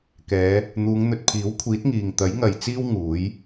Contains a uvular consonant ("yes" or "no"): no